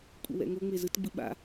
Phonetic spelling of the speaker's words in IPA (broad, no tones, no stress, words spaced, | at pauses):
kʷʼɛ̰wɛ̰ŋo ŋ͡mezɯt ɡ͡bɯɓa̰